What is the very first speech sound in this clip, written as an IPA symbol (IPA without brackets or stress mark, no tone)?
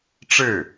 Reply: ʈ͡ʂ